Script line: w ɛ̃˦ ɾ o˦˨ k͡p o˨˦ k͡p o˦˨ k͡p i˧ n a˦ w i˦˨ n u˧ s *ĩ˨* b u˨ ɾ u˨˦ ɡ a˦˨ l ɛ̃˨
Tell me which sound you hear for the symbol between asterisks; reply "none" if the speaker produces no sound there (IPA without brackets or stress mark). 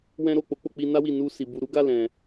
i˨